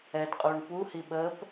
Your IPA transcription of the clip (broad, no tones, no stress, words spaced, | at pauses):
ɛdqʼuːɳ puhi ɓəːp